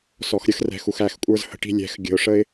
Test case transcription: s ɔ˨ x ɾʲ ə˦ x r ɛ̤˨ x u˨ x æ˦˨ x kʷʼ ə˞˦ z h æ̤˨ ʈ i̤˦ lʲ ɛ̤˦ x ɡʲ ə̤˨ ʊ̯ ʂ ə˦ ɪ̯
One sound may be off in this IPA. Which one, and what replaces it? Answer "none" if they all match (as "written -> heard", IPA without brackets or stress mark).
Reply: æ̤˨ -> ə̤˨